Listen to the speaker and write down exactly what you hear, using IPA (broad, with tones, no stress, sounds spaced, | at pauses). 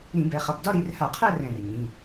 ɾ ĩ˧˩˧ b ɛ˩˧ χ ʌ˩˧˩ b d ɒ˥˧ ɾ i˩˧ r h a˧˩˧ qʰ ɜ˥˧ r ɛ̃˧˩ r ɲ ĩ˩˧˩